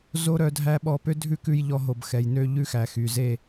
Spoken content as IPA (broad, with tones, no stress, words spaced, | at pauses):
zo˦ɾœ˧ dʱæ˦ɓɔ˧ pø˦dʱʉ˦kʉ˧jʎɔ˧ ɦo˨bxɛ˨j nø˧ ʎʉ˦˨xæ˨ xy˨ ze˦˨